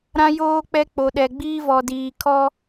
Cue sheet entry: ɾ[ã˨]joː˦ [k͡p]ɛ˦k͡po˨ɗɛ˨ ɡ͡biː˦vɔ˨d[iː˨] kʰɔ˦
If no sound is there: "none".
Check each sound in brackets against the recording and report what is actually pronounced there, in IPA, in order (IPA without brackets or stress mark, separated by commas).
ã˦, k͡p, iː˨